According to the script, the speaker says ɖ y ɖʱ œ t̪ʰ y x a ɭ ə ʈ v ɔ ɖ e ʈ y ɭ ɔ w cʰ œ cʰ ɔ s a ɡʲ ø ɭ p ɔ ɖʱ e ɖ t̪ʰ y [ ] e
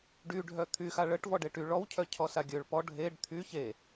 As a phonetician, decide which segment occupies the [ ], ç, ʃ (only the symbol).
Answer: ç